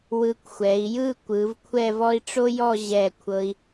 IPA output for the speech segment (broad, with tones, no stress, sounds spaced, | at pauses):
w ɯ˧ kʷ xʷ ɛ˩˧ i̯ j ɯ˥˧ kʷ ɯ˩˧ v kʷʰ ɛ˥˧ v ɔ˥ i̯ ʈ͡ʂ o˥ j ɔ˥˧ ʑ ɛ˧˩ kʷʰ ɤ˧ i̯